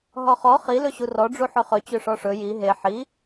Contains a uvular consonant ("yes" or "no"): yes